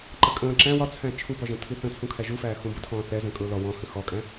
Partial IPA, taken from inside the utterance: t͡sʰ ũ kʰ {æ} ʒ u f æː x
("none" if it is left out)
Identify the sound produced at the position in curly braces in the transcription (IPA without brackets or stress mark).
æ